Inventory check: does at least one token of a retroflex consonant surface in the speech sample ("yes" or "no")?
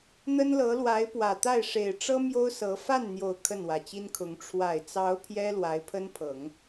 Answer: yes